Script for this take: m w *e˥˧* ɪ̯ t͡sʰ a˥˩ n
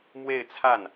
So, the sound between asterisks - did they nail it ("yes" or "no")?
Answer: yes